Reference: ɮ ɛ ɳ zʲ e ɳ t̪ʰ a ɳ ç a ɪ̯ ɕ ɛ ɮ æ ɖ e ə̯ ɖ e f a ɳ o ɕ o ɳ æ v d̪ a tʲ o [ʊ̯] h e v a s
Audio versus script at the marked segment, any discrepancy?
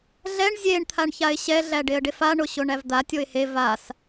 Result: yes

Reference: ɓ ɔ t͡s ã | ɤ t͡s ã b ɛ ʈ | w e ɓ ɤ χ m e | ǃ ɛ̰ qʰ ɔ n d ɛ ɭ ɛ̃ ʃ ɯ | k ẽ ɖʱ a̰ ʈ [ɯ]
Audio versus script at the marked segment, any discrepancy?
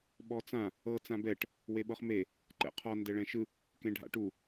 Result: yes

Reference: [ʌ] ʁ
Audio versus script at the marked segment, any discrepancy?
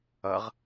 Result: no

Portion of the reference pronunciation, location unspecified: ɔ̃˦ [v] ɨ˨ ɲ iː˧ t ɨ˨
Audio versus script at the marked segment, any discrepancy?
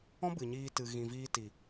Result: yes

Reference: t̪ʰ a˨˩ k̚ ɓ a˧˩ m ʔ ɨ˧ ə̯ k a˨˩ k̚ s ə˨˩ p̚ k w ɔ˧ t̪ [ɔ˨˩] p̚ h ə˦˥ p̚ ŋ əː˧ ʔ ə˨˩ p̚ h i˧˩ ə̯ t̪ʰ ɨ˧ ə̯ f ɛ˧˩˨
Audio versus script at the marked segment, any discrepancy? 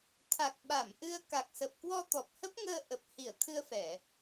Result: no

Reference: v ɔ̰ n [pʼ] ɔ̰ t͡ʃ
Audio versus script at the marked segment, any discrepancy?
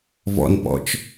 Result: yes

